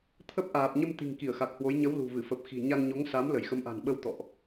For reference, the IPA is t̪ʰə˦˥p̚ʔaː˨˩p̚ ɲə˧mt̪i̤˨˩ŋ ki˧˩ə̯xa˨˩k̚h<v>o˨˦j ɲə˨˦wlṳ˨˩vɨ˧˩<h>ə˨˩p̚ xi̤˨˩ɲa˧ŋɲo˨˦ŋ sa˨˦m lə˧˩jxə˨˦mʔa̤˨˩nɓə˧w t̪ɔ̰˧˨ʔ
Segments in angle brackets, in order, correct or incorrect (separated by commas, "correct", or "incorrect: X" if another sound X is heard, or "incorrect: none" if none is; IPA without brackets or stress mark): incorrect: w, incorrect: f